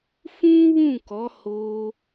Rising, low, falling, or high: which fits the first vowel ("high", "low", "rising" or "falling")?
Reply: high